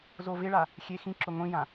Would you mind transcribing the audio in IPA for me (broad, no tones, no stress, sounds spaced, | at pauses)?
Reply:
z o v ɪ ɭ a | xʲ e x ĩ ǁ ʊ ŋʷ ĩ j ã